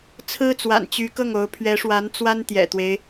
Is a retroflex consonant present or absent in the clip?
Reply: present